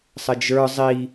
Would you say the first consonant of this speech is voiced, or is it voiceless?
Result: voiceless